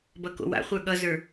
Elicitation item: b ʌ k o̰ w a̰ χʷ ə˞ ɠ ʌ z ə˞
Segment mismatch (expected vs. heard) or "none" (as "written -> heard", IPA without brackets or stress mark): none